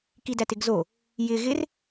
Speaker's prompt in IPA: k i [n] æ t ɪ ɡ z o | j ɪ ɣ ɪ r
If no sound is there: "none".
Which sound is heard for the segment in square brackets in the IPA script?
d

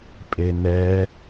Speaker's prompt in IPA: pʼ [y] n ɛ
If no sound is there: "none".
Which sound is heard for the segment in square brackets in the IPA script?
e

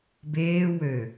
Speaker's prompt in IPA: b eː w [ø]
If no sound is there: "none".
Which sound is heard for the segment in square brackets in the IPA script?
ø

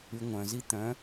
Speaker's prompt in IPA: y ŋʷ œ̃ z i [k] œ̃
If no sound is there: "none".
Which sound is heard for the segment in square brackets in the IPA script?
t̪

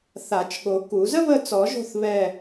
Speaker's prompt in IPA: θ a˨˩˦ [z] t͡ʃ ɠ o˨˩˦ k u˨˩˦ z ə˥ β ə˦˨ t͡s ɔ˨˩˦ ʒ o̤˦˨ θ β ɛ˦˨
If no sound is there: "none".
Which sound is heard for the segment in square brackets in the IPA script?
none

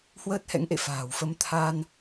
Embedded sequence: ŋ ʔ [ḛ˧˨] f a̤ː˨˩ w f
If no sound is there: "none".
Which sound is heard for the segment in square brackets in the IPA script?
ḛ˧˨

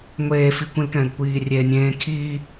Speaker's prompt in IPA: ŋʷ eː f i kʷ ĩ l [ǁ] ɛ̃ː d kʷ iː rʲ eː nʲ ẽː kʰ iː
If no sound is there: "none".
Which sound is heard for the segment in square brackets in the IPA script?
k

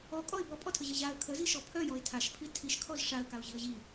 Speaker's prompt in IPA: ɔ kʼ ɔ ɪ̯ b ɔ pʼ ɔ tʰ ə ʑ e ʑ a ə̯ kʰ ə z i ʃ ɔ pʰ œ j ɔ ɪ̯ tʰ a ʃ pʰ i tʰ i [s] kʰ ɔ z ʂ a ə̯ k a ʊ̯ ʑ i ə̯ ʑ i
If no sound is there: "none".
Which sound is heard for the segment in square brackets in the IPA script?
ʃ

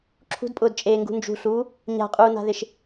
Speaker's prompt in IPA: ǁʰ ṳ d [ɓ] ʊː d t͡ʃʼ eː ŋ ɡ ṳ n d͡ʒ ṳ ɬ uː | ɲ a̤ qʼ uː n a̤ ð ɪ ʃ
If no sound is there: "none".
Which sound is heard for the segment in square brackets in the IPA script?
pʼ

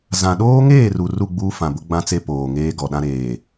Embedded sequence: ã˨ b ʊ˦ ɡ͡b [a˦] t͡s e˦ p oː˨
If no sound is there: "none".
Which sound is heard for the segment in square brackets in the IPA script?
ã˦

